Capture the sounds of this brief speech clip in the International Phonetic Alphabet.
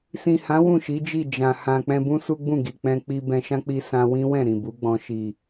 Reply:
s ĩ˨ h ã˨˦ w ũ˦˨ ʃ i˨˦ d͡ʒ i˦˨ d͡ʒ ã˨ h ã˨ k͡p ɛ̃˧ b ũ˦ s u˦ ɡ͡b ũ˦˨ ɡ i˨ k͡p ɛ̃˧ k͡p i˧ b ɛ̃˧ ʃ ã˦ k͡p i˧ s ã˧ w ĩ˦ w ɛ̃˦˨ ɾ ĩ˨ b u˨˦ ɡ͡b ɔ̃˧ ʃ i˨

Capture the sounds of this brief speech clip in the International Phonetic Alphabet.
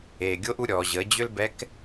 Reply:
eː˩ ɡʲ o˧˥ ʔ u˩˧ ɾʲ ɔː˩ ʑ əː˩˧ d͡ʑ ʏ˥ l b ɛ˧˥ k

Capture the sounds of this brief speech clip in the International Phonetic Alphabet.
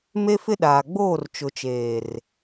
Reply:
m e˦ f ɪ˦ ɗ aː˨ ɡ͡b oː˦˨ r t͡ʃ ʊ˨ t͡ʃ eː˨ r

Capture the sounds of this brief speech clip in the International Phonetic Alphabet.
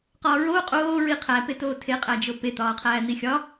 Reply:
q ɒː ɹ oː qʼ oː ɹ i qʰ æ p e t oː tʰ e qʼ æ d͡ʒ o p e t̪ ɒː qʰ æː n̪ i xʲ ɒ

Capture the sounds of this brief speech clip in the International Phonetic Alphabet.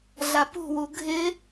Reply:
ɮ a p ṳ w u ɡʱ ɪ

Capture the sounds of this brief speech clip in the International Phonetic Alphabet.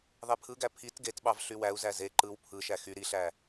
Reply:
ðˤ e pʰ ɯ ɡ æ pʰ i t ɡ e t ɓ ɑ v ɬ y w æ u̯ z æ z e ǃ ɯ w pʰ ɯ ʃ æ x y ɾ i ɬ æ

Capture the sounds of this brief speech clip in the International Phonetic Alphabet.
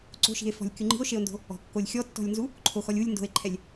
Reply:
ǀ o̤ ʃ i̤ e̯ f ɔ̤ lʲ kʲ u ŋ͡ǃ i̤ o̯ ʃ e o̯ n d o̤ | ɔ̤ kː o lʲ xʲ ɔ tː ɔ̤ lʲ n z u | ǃʰ o x ɔ lʲ u lʲ n d o̤ e̯ ǃʰ ɛ lʲ

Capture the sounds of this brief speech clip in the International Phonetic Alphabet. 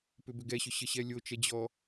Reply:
p ʏ b ʏ ɡ ɛ ɕ ʏ ɕ ə ɕ ɛ lʲ o t͡ʃ ɛ d͡ʑ ɔ

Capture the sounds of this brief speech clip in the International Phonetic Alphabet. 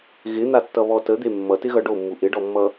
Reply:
ɣ ɪ n̪ a tː ʌ β ɔ t ə d̪ e mː ʌ t ɪ ɣ ʌ ɖ o mː u ʔ ɪ ɖ ɔ mː ʌ

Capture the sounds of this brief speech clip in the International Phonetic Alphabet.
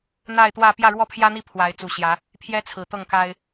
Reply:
n̪ a˥˨ ɪ̯ t̪ w ä˥˨ p j ä˥˨ ɻ w ɔ˥˨ pʰ j ä˦ n̪ i˦ pʰ w a˨˦ ɪ̯ t͡s u˨˩ ɕ j ä˨˦ | pʰ j ɛ˦ t͡sʰ ɹ̩˨˩ t̪ ɤ˥˨ ŋ k a˦ ɪ̯

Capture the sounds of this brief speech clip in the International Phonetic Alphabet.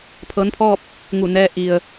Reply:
pʰ ɤː˧˥ n pʰ ɔː˥˨ p̚ | ŋ u˧˩ n ɛː˧ ʔ i˩ ə̯

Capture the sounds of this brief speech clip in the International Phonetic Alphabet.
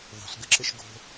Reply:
ðˤ o̤ s ɡ ɘ ǁ ɘ ʃ ɡ o̤

